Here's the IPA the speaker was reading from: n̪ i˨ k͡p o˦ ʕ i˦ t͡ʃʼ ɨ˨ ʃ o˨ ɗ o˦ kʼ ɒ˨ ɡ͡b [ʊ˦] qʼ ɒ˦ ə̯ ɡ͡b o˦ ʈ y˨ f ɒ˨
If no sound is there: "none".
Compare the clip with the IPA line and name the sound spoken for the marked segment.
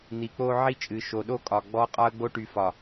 ɔ˦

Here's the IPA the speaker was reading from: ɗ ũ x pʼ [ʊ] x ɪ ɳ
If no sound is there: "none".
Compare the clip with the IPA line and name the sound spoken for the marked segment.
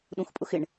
ʊ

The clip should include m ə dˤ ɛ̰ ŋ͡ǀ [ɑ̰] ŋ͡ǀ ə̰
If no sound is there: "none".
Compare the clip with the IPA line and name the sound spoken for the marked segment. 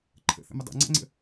ɑ̰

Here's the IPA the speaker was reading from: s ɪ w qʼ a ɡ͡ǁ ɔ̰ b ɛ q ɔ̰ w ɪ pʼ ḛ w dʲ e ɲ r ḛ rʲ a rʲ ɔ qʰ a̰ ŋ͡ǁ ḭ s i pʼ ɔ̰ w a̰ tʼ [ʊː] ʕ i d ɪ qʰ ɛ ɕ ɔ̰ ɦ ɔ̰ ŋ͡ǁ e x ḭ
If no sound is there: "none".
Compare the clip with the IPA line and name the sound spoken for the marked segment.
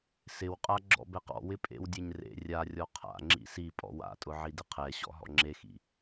ʊ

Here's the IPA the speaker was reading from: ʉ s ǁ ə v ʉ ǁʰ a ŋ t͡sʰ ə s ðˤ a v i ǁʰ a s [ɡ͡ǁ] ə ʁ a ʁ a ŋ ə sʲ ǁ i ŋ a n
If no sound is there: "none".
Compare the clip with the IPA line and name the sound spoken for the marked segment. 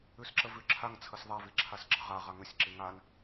ɡ͡ǁ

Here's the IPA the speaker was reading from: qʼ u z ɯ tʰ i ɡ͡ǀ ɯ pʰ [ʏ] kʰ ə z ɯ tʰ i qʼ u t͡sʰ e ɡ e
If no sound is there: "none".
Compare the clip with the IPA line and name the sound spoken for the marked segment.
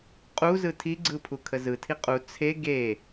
u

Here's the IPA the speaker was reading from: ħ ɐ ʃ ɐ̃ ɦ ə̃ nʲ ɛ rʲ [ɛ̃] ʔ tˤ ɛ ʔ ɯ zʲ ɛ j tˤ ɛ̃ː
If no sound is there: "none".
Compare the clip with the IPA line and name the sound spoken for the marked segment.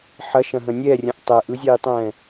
ə̃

